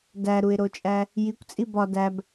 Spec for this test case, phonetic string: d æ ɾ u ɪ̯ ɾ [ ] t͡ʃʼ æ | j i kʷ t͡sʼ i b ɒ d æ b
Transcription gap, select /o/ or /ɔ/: o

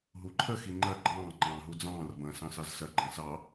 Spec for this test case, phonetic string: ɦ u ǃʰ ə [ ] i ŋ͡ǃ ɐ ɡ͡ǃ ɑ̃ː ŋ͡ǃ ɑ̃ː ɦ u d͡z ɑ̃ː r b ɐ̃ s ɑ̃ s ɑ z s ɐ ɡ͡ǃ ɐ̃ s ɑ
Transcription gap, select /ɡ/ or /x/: x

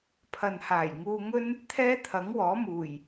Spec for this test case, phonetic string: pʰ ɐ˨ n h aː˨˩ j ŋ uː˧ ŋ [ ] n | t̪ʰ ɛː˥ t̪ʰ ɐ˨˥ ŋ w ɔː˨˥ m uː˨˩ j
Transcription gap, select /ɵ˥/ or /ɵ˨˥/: ɵ˥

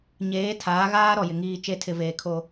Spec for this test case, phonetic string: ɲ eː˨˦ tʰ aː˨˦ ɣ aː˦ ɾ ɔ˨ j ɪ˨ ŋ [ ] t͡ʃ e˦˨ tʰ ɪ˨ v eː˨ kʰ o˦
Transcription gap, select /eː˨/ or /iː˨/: iː˨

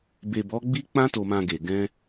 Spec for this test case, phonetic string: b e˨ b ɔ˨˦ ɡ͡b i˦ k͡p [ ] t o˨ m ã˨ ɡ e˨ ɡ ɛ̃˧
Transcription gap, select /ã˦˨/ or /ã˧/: ã˧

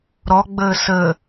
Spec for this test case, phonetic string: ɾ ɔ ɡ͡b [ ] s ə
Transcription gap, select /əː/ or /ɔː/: əː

